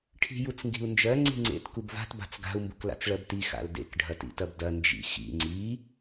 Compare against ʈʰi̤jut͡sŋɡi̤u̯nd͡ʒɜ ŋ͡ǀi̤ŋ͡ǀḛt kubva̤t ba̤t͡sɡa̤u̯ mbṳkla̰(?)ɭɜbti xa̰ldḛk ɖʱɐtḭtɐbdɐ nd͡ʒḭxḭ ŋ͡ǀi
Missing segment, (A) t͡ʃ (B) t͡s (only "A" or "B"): B